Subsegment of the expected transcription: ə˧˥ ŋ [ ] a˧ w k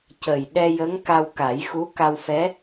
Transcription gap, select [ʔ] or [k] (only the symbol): k